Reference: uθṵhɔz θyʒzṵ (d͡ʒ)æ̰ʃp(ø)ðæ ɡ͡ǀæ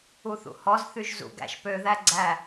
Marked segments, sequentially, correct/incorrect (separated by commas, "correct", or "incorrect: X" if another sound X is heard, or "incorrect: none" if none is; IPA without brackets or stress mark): incorrect: ɡ, correct